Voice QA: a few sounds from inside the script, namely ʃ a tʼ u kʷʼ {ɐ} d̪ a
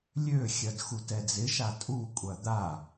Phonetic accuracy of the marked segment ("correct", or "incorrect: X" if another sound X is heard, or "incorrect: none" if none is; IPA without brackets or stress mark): correct